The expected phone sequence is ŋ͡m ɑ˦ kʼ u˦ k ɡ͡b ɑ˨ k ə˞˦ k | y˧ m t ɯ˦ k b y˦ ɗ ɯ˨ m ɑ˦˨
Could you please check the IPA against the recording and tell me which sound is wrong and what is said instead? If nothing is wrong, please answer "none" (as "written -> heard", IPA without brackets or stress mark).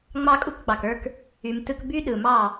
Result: none